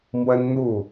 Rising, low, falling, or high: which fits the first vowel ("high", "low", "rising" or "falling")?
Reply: high